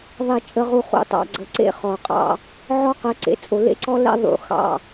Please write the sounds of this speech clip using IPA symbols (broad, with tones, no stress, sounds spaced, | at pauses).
ðˤ e˨ t͡ʃʼ ə˨ ʁ u˨ χ ṵ˨ tˤ ɑ̰˨ ɡ͡ǀ ə˨ ǀ ḛ˦ χ ɔ˨ qʼ ɑ̰˦ | ʕ ɔ˦ q ə˨˦ ǀ ḛ˨ t͡sʼ o˨ l ḛ˦ ǀ ɔ˦ l ɛ̰˦ ðˤ ṵ˨ x ɑ̰˦˨